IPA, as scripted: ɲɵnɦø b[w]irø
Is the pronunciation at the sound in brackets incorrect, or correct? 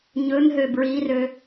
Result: incorrect